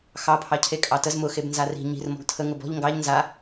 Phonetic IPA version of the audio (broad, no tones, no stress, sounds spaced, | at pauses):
x ɑ pʰ ɑ cʰ e kʼ ɑ t ə z m ʊ x e b n z a r i̤ ɲ i̤ r m ɔ̤ ɡ tʰ ə ŋ ʊ b ɔ̤ ʎ ŋ ɡ ɑ ʎ n z a